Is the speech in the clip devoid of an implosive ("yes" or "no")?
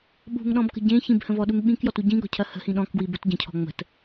no